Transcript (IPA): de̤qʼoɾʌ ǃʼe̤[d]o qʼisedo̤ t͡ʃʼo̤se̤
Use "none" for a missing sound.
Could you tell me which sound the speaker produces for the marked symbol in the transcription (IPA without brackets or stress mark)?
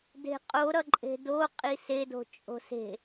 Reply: d